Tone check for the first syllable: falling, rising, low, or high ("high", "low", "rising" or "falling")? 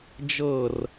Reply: falling